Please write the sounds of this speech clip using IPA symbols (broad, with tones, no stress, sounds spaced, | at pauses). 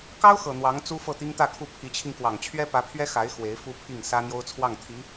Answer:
k ɑ˥ ʊ̯ x ɤ˨˩ n̪ w ɑ˧˥ ŋ t͡s u˥ f ɤ˥˩ t̪ i˥ ŋ t̪ ä˥˧ kʰ u˥˩ pʰ i˧˥ t͡ɕʰ i˧ ŋ k w ɑ˨˩ ŋ t͡ɕʰ ɥ ɛ˥ p ä˧˥ pʰ ɥ ɛ˥ x a˧˥ ɪ̯ x w e˧˥ ɪ̯ f u˥ pʰ i˥˩ ŋ s ä˥ n̪ j o˥ ʊ̯ t͡sʰ w ɑ˥˩ ŋ t̪ʰ i˧˥